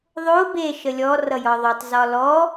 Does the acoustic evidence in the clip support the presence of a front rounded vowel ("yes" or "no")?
no